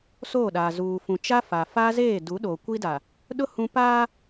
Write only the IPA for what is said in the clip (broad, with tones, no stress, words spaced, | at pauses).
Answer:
soː˦˨ɗaː˨ zuː˨ fũ˨t͡ʃa˦ fa˨ fa˦zeː˦˨ du˨˦ɗo˨ kʷi˦da˨ | ɗʊ˦ hũ˦ paː˦